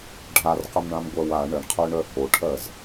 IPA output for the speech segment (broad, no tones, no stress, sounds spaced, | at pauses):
ɖʱ a r q ə m ɳ ã m ɡʷ ɜ w a ɳ ə ɳ qʰ œ ɳ œ h o ʈʰ ɜ z